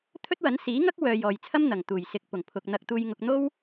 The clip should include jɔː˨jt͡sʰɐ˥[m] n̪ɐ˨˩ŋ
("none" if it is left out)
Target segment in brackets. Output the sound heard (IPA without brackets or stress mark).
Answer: m